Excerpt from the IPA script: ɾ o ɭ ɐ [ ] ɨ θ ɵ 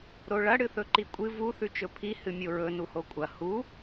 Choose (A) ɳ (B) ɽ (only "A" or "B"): B